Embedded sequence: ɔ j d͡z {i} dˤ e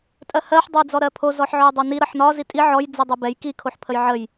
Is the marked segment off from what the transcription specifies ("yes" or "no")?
no